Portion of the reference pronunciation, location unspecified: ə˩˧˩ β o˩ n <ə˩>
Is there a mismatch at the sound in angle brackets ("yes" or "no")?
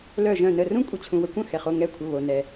yes